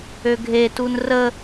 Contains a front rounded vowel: yes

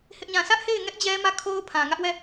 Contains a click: no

